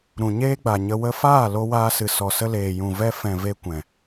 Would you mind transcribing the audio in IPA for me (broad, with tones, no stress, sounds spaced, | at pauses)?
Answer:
ɾ ũ˨ ɲ eː˦ ɡ͡b a˨ ɲ ə˧ w ə˧ f aː˦˨ l o˧ w aː˧ s ɨ˨ s ɔ˨ s ə˧ l eː˨ j ũ˨ v ɛ˧ f ɛ̃˨ v e˧ kʷ ɛ̃˨